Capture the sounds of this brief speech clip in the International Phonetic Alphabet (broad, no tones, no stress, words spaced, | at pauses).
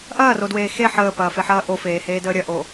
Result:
ʔɐːrodweː xe ħəːpɐːfeħɐː ʔofeːheːdəː ɾʲɐʔo